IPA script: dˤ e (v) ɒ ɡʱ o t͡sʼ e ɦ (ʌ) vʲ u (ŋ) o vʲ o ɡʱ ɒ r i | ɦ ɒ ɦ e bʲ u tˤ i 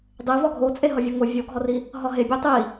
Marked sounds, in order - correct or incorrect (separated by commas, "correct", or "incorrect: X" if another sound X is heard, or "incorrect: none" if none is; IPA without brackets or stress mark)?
correct, incorrect: ɒ, correct